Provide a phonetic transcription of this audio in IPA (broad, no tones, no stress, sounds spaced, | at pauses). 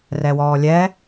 r ɛ w ɔː lʲ ɛ